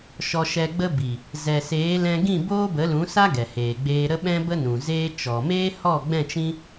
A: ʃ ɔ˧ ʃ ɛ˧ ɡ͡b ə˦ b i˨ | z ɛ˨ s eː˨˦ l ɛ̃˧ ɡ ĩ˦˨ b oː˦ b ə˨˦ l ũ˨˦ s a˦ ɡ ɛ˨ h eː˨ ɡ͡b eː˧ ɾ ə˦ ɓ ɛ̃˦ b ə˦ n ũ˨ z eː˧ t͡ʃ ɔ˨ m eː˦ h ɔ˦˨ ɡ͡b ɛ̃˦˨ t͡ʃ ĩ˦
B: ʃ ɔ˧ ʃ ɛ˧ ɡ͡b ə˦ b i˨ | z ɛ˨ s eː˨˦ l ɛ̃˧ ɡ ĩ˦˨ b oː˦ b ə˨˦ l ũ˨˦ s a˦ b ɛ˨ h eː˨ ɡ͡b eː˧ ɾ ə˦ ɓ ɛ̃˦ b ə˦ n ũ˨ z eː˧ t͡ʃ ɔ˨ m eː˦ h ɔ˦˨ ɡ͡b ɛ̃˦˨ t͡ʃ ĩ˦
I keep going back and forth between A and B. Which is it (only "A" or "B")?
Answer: A